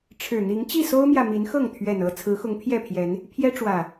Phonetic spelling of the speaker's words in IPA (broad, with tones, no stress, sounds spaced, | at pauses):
ʈ͡ʂʰ ɻ̩˨˩ n̪ i˨˦ ŋ t͡ɕ i˥˨ s o˦ ʊ̯ m j ä˨ m i˨˦ n x ɤ˥˨ ŋ t̪ʰ ɥ ɛ˨˩ n ɤ˥˨ t͡sʰ ɹ̩˨˦ x ʊ˨˦ ŋ pʰ j ɛ˥˨ pʰ j ɛ˨˦ n | pʰ j ɛ˦ ʈ͡ʂ w ä˨˩